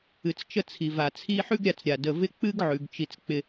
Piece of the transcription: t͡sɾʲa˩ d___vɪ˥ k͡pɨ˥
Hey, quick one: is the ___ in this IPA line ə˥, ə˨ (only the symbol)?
ə˨